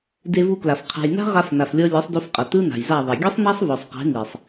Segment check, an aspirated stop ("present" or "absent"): present